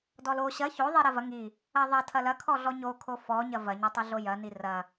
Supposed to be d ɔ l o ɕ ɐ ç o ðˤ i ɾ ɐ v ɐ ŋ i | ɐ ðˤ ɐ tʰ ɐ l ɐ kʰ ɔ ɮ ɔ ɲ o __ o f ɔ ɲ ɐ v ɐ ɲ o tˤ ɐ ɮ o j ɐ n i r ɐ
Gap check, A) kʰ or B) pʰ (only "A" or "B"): A